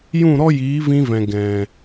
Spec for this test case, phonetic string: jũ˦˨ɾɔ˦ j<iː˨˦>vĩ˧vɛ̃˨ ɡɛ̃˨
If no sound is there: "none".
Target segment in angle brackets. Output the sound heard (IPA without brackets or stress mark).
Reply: iː˨˦